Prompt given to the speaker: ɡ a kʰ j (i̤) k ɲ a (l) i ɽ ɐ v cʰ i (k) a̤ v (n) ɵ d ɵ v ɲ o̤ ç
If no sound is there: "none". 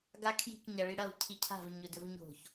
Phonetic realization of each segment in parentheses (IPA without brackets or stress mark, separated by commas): i̤, ɭ, cʰ, ɲ